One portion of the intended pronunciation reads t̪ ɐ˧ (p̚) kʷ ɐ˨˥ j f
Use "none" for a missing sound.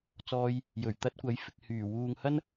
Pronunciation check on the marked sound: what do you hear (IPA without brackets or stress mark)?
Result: t̚